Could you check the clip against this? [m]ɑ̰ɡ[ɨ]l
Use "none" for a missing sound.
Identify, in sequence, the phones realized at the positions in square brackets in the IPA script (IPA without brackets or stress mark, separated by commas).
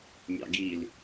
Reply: mʲ, i